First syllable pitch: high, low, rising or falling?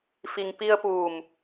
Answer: low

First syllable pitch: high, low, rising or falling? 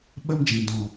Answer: high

